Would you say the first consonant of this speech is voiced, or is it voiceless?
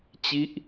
voiceless